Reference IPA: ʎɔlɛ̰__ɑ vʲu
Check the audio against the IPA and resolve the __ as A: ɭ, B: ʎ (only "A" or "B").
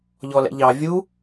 B